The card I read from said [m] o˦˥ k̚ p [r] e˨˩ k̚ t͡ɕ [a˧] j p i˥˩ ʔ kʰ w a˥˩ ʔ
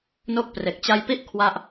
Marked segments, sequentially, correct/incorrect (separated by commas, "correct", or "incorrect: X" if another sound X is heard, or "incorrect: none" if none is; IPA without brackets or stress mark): incorrect: n, correct, correct